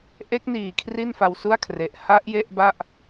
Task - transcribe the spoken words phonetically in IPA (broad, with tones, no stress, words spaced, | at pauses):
ʔe˦˥k̚niː˨˩ kʰri˥˩nfa˧wsu˥˩a̯kʰre˨˩ʔ ha˦˥ʔ je˥˩ʔba˥˩ʔ